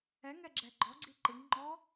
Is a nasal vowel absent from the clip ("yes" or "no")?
yes